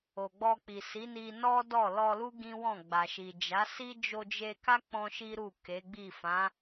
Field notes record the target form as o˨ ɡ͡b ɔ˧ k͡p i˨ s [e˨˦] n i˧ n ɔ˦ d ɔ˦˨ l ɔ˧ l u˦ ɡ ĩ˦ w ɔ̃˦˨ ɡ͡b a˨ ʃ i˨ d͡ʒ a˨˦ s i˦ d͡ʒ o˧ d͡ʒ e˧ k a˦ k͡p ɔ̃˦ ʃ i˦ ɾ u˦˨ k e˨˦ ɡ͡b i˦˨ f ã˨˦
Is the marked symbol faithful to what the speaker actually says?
no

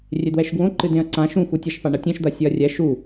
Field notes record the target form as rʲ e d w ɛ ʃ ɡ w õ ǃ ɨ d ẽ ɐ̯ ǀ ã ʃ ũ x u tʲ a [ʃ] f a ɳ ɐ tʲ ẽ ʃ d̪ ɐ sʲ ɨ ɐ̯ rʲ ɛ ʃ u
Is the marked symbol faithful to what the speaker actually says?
yes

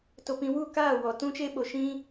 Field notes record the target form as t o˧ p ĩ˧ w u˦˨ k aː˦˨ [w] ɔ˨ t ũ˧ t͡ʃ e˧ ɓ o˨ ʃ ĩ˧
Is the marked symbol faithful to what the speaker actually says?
yes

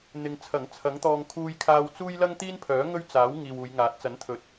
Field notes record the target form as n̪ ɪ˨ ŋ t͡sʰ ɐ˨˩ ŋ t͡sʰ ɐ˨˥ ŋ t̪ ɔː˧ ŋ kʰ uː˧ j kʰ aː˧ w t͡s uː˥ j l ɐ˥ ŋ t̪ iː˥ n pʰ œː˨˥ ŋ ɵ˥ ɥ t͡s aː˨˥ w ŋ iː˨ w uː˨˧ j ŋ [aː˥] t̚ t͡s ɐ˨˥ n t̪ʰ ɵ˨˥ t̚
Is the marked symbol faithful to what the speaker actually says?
no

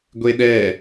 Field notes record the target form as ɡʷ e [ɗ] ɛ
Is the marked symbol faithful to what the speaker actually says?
yes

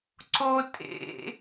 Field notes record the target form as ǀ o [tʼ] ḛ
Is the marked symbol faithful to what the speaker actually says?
yes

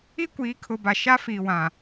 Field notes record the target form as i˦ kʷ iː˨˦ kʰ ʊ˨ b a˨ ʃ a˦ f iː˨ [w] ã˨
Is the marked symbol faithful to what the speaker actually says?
yes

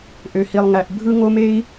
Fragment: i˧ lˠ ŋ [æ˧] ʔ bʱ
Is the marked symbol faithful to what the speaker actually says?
yes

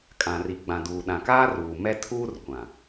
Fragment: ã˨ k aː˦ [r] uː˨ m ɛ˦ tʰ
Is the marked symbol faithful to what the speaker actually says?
yes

